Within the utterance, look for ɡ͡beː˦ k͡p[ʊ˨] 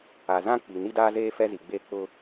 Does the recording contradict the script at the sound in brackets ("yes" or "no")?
yes